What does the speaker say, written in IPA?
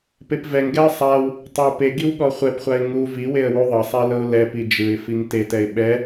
p e p v ɛ ŋ ɡ ɛ ə̯ sˤ a w | tˤ i w p e ɡ i w ɠ ɔ χʷ ɛ p χʷ a ɪ̯ ŋ u v i w e ə̯ w u ðˤ ɤ sˤ ɛ l ɤ ʊ̯ l ɛ p i d͡ʒ ɯ ɪ̯ f i ŋ t e t ɛ ɪ̯ ɓ ɛ

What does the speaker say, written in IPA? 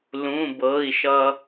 l ũ˩˧˩ b ɤ˩˧˩ i̯ ʃ ʌ˧

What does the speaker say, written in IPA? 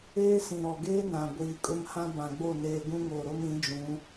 eː˦ s ĩ˨ ɾ ɔ˨ ɡ eː˦ n ã˨ ɡʷ iː˨ kʼ ʊ˦ m h ã˦ b ã˨ ɡ͡b o˦˨ n eː˨ ɡ ũ˦ ŋ oː˨ ɾ o˦ m ĩ˨˦ d͡ʒ ũ˨˦

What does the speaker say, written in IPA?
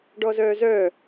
ɖ ɔ z œː z œ

